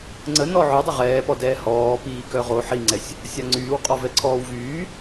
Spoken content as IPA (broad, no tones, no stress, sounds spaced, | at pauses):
ŋ͡ǀ ə n ɔ ʕ œ dˤ ə ʁ ɛː p ɔ d ɛː h ɔː p iː k œ ʁ o ħ i ŋ͡ǀ ɛ sʲ | sʲ a ŋ͡ǀ yː w qʼ ɔ v ɛ ǀʰ ɔː w v yː